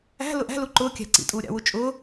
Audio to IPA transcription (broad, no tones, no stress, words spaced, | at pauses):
æ̤lʊ ʔæ̤lu ǃʊːkʲæ̤ ǀḭtʼuː ɾʲɑ̰wu t͡ʃʼʊː